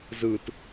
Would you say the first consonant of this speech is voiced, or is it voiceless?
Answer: voiced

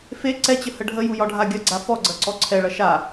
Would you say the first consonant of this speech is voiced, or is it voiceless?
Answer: voiceless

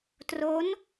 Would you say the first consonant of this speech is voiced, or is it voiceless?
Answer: voiceless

